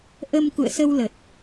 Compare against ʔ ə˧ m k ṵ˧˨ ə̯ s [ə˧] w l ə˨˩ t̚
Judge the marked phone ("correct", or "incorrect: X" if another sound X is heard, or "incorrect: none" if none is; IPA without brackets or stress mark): correct